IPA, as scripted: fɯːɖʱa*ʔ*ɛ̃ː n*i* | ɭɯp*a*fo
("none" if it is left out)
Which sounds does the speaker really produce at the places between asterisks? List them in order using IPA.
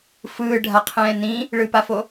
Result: qʰ, ĩ, a

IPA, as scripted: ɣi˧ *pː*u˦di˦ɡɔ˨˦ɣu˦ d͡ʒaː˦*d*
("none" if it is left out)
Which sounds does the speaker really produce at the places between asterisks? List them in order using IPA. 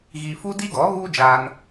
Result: f, n

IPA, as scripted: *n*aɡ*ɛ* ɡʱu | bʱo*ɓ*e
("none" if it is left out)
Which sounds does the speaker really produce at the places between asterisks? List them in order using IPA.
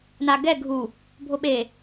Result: n, ɛ, ɓ

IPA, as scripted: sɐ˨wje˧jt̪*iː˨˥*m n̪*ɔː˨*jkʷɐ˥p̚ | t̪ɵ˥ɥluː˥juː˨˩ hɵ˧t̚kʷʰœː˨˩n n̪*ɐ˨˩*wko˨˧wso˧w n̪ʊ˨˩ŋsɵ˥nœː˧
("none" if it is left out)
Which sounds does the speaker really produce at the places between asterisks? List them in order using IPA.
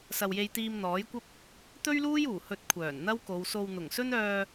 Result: iː˧, ɔː˨˥, ɐ˥

